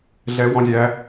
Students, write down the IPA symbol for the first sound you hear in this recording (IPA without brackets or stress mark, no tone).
ɮ